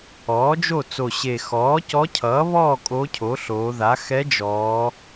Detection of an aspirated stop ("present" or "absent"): present